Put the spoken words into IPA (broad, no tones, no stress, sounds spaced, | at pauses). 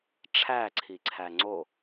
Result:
ʈ͡ʂʰ æ ǀʰ i ǀʰ æ ŋ͡ǀ o